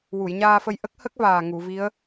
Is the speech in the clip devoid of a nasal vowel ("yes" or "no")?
yes